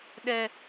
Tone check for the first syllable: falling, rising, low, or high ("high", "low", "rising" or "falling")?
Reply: low